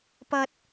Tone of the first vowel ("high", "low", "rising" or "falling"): high